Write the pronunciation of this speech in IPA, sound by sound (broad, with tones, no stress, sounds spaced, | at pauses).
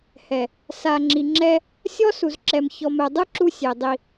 h ɛ˨ | s a˨ ŋ͡ǁ i˨ ŋ͡ǁ ɛ˦ | sʲ ɔ˦ s u˨ z ǁ ɛ˨ m ç ɔ˨ m ɛ˨ dˤ ɯ˦ ǁ u˦ sʲ e˨ dˤ i˦